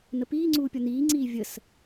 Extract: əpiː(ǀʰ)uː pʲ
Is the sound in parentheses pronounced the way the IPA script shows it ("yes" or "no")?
no